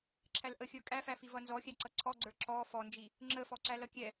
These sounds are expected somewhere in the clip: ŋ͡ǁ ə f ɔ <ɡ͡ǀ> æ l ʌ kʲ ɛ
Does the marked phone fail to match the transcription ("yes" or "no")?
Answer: yes